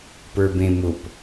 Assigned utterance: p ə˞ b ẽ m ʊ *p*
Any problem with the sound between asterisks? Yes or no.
no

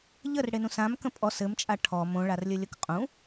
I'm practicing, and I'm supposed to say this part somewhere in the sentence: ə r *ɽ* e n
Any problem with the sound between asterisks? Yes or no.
no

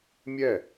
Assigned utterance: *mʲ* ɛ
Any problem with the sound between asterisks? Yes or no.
no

